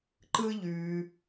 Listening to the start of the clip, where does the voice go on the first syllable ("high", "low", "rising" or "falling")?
high